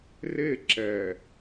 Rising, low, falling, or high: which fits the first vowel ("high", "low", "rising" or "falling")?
falling